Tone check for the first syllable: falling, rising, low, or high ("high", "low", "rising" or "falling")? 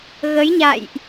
rising